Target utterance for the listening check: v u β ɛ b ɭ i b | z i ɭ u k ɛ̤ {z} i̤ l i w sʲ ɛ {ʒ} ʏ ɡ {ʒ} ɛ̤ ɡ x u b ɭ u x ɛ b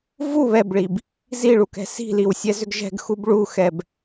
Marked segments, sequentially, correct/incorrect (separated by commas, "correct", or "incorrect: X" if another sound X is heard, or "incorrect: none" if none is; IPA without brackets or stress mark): incorrect: s, incorrect: z, correct